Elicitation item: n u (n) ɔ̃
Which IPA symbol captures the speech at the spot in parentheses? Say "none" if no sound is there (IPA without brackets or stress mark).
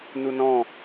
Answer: n